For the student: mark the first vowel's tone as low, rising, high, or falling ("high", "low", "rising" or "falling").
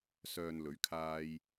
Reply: low